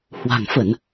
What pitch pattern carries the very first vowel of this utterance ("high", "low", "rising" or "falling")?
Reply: low